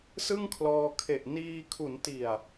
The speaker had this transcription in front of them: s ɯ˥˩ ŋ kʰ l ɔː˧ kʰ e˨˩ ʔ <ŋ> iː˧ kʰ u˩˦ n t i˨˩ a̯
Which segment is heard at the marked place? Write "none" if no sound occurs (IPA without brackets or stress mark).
n